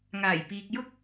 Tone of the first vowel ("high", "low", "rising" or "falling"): low